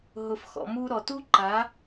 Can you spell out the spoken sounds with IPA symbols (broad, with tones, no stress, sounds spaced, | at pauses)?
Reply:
ɦ ʊ˩ f x ɔ̰˩ m u˧ ɾ ɔ˩ t u˥ ǃ a˩˥